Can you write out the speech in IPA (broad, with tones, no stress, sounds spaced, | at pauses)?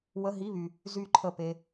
w ə˧˥˧ ɦ i˧˥˧ β y˨ | z y˥˩ ǃʰ ə˥˩ p e˥